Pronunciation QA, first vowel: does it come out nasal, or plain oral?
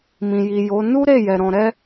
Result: nasal